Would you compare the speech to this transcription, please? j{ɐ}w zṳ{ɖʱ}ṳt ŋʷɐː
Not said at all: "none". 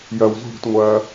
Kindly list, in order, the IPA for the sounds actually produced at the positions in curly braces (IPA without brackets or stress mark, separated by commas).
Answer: ɐ, ɽ